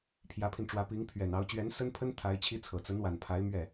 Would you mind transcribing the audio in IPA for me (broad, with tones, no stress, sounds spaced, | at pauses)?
pʰ j ä˧˥ pʰ i˧ n ʈ͡ʂ w ä˧˥ p i˧˥ ŋ pʰ ɥ ɛ˨˩ n ɑ˧˥ ʊ̯ t͡ɕ ɥ ɛ˧˥ n s ə˥ n pʰ ə˥ n t̪ʰ a˧˥ ɪ̯ t͡ɕʰ i˥ t͡sʰ ɤ˨˩ t͡s ə˧˥ n w a˨˩ n pʰ a˧˥ ɪ̯ m ɥ ɛ˥˩